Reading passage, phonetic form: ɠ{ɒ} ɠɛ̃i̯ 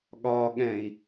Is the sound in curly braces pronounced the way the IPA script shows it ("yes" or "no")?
yes